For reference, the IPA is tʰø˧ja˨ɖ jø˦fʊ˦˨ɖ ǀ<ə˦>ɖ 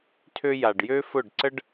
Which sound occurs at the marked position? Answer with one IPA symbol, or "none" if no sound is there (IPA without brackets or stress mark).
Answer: ə˦